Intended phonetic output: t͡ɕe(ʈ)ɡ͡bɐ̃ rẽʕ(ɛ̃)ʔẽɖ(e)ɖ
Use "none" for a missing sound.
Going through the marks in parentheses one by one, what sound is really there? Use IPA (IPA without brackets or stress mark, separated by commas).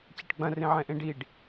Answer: ʈ, ɛ̃, i